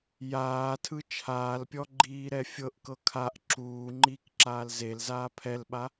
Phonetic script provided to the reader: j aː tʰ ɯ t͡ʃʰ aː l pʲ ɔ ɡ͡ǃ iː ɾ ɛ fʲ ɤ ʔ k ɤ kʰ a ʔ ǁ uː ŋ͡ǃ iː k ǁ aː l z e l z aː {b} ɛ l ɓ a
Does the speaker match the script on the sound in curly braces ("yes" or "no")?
no